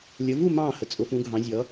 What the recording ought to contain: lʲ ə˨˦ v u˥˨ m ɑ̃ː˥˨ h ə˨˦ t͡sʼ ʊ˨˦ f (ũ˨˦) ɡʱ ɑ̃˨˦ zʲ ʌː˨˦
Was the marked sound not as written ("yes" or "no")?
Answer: no